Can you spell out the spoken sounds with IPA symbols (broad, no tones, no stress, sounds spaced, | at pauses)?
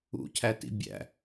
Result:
ṵ cʰ æ t ḭ bʲ æ̰